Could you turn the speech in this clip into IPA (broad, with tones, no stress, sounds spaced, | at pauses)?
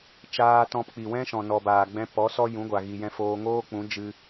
t͡ʃ aː˧ t ɔ̃˧ p k͡p i˨ w ɛ̃˦ ʃ ɔ̃˨ n ɔ˨ b aː˨ ɡ͡b ɛ̃˧ p ɔ˨˦ s ɔ˦ j ũ˨˦ ɡʷ a˨ ɣ i˨ j ɛ̃˧ f oː˧ ŋ oː˦ k͡p ũ˨˦ d͡ʒ ɨ˧